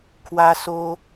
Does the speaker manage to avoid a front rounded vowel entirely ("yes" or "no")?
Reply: yes